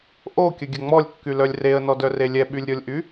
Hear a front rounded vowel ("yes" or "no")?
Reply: yes